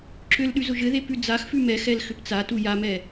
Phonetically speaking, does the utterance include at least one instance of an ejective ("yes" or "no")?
no